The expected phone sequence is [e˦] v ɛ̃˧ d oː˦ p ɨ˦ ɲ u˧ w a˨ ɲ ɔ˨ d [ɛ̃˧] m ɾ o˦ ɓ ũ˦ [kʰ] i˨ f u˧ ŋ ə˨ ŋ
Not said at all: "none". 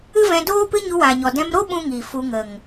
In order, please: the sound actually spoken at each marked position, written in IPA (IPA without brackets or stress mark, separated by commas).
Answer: ɨ˦, ɛ̃˧, ŋ